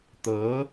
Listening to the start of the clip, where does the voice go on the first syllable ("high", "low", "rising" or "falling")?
rising